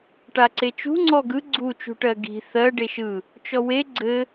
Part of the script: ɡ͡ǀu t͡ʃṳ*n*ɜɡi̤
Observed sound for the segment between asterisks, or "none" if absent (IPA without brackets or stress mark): ʈ